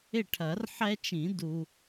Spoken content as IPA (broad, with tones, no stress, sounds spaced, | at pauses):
ɪ˥˨ ʈʰ ɐ˨˩˦ r ħ ɛ˦ t͡ʃ ĩ˨˩˦ d u˨